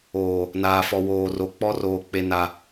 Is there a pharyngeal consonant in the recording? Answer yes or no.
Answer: no